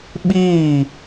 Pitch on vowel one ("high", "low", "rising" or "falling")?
falling